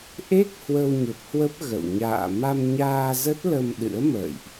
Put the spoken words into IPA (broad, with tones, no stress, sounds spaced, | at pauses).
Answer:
ʔ e˦˥ k̚ h w ə˧ w ɲ ə˨˩ p̚ h w ə˦˥ p̚ ɣ ə̰˧˨ w ɲ a̰ː˧˨ m a˧ m ɲ aː˧ z ə˦˥ t̚ l ə˧ m ɗ ɨ̰˧˥ ə̯ m ə̰ː˧˨ j ʔ